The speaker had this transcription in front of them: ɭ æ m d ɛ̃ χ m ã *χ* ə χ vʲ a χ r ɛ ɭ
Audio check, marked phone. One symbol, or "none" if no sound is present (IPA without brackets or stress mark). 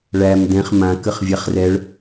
k